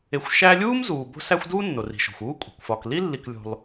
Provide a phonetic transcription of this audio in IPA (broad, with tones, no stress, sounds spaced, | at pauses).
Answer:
e˨ xʷ ʃ æ˦ lʲ uː˥ m z uː˩ b o̤˦ s æ˦ xʷ d uː˥ nː o˩ r i̤˩ ʃ o̤˩ xʷ uː˥ kʷʼ i̤˩ kʷ f ɒ˨ k l i˥ lː i˨ k lʲ o̤˨ lˠ